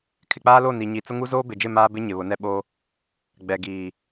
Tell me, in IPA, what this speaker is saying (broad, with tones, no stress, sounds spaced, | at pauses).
kʰ ɪ˨ k͡p aː˦ l o˦˨ n i˨ ɲ i˨ t͡s ʊ˦ ŋ u˦ z oː˦ b ɪ˨ d͡ʒ ɪ˦˨ m aː˦ b ɪ˦ ɲ ɪ˨ β ʊ˨˦ n ɛ˦ ɓ o˦ | ɡ͡b ɛ˨ ɡ iː˨